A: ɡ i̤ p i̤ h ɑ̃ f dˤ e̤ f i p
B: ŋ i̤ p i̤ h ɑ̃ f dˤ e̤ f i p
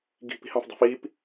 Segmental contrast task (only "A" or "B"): A